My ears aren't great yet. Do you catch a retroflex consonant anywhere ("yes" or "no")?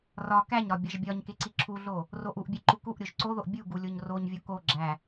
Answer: no